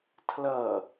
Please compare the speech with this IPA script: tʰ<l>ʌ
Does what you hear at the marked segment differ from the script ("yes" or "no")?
no